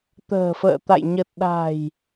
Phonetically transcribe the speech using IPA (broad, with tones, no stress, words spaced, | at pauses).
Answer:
t̪ə̤ː˨˩fə̰ː˧˨t̪a̰˧˨j ɲə˨˩t̚ɗa̤˨˩j